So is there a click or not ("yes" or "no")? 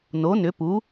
no